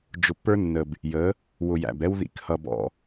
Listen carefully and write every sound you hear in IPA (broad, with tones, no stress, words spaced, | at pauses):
d͡ʒʊ˨pːə˞˦nːə˨b | jə˨˦ | wʊ˨jæ̰˨bɛ˦w ðḭ˨khʌ˨ bɔ̰˦